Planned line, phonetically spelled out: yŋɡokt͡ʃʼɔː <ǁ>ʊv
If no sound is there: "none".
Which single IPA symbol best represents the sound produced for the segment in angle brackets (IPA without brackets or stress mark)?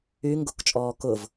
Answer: k